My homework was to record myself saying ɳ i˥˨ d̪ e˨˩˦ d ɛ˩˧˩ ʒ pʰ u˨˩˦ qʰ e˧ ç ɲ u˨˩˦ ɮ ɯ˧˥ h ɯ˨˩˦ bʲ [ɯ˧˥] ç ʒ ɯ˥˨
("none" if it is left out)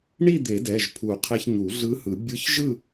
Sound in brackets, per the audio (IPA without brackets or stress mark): ɯ˧˥